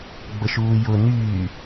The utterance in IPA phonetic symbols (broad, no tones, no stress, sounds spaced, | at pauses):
ɡ͡b ə ʃ uː j ʊ n yː